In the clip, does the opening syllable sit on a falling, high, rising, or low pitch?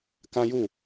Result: high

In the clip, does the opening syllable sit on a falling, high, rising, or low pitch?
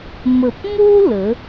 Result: low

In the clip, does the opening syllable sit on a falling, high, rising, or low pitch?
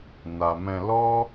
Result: low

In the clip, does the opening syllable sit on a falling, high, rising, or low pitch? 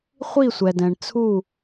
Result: falling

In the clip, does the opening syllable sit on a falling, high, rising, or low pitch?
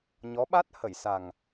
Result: rising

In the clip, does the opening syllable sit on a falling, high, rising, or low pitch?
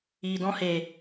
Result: low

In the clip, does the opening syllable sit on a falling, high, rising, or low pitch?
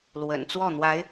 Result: low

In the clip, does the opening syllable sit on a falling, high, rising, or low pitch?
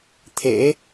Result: rising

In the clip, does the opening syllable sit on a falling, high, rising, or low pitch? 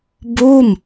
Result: falling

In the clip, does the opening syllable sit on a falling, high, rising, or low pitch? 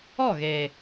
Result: falling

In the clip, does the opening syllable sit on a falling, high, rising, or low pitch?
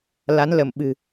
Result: rising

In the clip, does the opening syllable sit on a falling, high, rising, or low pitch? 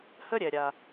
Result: high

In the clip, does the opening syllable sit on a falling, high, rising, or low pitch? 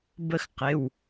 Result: falling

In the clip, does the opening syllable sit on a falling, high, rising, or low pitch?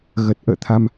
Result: low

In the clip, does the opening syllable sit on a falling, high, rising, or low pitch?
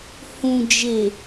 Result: low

